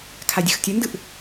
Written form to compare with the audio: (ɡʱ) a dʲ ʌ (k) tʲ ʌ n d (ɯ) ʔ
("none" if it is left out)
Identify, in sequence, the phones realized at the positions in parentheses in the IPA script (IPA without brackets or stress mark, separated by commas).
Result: kʰ, x, ɯ